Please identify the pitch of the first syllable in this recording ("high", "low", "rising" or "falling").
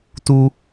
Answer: high